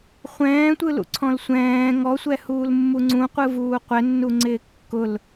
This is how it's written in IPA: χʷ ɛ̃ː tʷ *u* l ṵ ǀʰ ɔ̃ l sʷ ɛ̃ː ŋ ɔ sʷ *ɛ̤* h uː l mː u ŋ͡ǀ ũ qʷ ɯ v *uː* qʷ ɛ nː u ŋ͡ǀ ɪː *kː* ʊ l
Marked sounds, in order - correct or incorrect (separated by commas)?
incorrect, incorrect, correct, correct